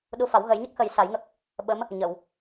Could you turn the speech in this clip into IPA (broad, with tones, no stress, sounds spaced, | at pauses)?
ɗ u˧ f a˨˩˦ w ɣ ə˨˩˦ j ɲ ə˦˥ k̚ x ə˨˩˦ j s a˨˩˦ j ŋ ə˦˥ k̚ | ɓ ə˧˥ m | ɲ ə˨˩˨ w